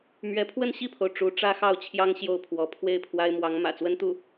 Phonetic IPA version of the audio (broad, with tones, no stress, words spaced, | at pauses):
mɥɛ˧˥ pʰwə˥˧nɕi˥˩pʰo˩ʊ̯ ʈ͡ʂu˧˥ ʈ͡ʂä˥xɑ˥˩ʊ̯t͡ɕʰjɑ˥ŋ ɕjo˥˩ʊ̯pʰwɔ˧˥ pʰwe˥˩ɪ̯pʰwa˥ɪ̯mwɑ˧˥ŋ mä̰˨˩t͡swə˥nt̪u˥˩